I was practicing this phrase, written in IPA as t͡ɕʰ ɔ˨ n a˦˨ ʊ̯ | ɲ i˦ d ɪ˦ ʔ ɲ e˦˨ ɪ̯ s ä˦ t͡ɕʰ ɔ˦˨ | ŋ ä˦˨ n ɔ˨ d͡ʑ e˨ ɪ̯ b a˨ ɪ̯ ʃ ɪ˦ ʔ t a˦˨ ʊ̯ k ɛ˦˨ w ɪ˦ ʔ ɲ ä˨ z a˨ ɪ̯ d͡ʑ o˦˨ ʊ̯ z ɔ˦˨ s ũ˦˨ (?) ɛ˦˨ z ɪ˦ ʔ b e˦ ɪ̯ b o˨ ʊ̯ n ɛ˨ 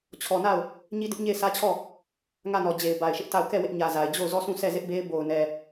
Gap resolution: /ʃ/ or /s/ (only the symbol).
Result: s